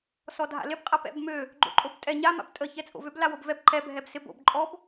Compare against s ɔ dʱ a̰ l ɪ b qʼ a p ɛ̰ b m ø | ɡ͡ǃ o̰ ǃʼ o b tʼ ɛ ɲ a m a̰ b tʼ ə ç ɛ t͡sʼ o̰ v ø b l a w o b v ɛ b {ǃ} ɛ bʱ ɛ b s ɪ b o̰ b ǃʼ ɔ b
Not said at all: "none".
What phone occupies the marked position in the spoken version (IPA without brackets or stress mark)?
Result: ǃ